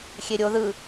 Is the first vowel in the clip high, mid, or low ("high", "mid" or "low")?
mid